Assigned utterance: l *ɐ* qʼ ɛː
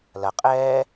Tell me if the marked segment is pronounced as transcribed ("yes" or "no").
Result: yes